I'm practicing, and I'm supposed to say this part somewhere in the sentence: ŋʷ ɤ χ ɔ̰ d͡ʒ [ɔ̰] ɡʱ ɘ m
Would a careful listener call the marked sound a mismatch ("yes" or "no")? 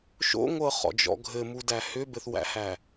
no